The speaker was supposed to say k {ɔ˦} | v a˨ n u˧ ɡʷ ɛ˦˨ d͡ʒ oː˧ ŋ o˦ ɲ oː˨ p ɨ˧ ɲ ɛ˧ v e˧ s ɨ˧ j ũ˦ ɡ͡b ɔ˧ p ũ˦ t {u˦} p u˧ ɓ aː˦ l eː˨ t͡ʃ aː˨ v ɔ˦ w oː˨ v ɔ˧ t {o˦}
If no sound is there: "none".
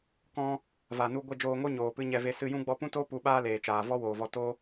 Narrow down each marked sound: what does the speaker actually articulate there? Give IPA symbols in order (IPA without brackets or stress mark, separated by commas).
ɔ̃˦, o˦, o˦